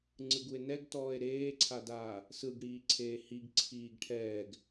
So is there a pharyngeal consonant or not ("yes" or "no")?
no